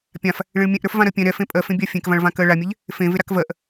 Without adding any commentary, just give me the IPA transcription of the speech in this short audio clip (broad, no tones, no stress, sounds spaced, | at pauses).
pʲ ã f | ɭ ẽ ɭ mʲ ɛ̃ ʔ ɾ ə˞ f v ã ɾ ɜ pʲ ɛ̃ ɾ ɛ f ẽ pʼ ɜ f ẽ bʲ a fʲ ẽ k v ã ɭ v ã k ɜ ɭ a mʲ ɛ ʎ | f ẽ v e ɾ a k v ɜ ʔ